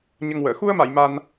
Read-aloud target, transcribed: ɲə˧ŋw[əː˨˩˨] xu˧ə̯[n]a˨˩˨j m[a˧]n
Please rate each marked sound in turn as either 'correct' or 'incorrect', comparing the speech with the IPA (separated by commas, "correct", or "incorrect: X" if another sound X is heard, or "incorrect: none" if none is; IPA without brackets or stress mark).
correct, incorrect: m, correct